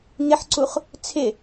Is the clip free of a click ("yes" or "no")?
no